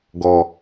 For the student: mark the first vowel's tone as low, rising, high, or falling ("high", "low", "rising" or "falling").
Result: low